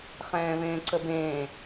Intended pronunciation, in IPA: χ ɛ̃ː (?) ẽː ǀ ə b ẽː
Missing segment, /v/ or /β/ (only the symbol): β